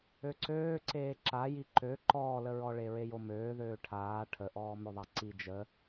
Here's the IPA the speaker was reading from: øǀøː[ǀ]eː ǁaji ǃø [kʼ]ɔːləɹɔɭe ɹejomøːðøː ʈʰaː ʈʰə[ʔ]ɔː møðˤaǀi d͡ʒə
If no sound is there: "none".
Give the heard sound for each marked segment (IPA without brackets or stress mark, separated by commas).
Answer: ǀ, ǃ, ʔ